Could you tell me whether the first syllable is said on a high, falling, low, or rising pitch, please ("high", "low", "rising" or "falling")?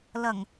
low